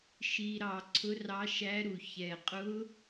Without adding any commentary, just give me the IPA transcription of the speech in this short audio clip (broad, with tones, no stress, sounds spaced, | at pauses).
ʃ i˧ ɾ ɑ˧ ǀʰ ʊ˦˥ r ɑ˦˥ ʃ æ˦˥ ɾ u˧ ç ɛ˧ qʼ ʊ˦˥